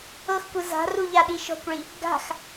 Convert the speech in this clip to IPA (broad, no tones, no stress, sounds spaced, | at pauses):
ɤ x kʷ ɯ z a̤ r u ʎ a ɗ i ʃ ɔ̤ kʷ ɭ i | ɡ a̤ x